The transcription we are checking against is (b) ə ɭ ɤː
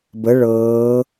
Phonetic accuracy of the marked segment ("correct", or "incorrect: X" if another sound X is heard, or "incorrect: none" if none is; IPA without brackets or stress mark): correct